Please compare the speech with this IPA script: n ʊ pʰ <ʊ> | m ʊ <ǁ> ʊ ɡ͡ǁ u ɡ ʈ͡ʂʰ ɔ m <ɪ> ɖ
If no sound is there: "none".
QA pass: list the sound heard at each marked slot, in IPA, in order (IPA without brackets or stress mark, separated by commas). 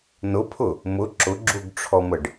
ʊ, ǁ, ə